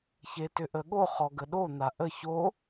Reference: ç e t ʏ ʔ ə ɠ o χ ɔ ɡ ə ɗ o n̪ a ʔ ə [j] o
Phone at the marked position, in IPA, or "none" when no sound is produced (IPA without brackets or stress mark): ç